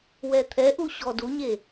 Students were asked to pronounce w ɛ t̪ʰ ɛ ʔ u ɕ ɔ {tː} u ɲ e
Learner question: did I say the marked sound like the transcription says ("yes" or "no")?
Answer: no